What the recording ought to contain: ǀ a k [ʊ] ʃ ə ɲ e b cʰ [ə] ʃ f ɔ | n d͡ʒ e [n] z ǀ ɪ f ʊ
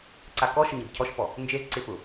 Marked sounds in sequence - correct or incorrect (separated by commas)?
incorrect, incorrect, incorrect